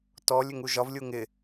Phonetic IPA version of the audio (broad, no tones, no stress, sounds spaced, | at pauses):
t ɔ lʲ ʏ ŋ u ʒ ɒ v lʲ u ŋ ɪ